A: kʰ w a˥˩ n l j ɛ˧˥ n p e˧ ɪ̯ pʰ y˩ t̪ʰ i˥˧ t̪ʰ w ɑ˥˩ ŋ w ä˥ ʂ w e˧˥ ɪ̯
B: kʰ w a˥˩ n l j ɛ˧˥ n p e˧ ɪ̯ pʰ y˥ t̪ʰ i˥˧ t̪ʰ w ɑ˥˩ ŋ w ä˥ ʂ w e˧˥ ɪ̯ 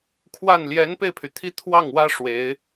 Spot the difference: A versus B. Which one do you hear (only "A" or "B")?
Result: A